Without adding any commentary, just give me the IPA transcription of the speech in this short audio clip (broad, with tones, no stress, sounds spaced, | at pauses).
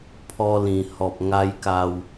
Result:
pʰ ɔ˧ l ĩ˨˩ h ɔ˨ p̚ ŋ a˦ j k a˧ w